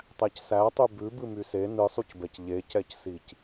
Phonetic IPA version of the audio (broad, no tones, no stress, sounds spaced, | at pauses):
tˤ æ c s æ tˤ y b ʉ b ɨ m y s e n ɨ sˤ u c b ɛ c ʎ e c ɛ c s i c